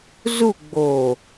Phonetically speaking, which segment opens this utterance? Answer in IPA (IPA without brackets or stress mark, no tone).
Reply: z